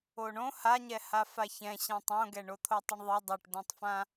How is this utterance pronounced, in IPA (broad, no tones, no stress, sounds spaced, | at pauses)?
o ɳ õ h a ɲ ɛ h a f a ç ɛ̃ ɕ ã tˤ õ ɡ ɛ ɳ o t̪ʰ o tˤ œ ɳ ðˤ ɛ dˤ o ʈ d õ tˤ f ã